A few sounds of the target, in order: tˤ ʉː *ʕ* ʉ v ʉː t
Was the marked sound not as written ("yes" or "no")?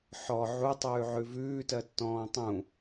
no